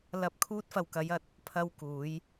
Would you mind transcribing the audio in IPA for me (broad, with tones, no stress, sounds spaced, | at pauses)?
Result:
l ɐ˧ p̚ kʰ uː˧ t̚ f ɐ˨ w k ɐ˨˧ j ɐ˨˥ t̚ | pʰ ɐ˧ w k uː˨˧ j